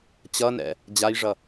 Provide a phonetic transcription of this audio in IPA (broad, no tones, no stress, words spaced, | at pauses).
t͡ɕʌnɛ̰ | d͡ʑajʐʌ